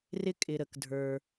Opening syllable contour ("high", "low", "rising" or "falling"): high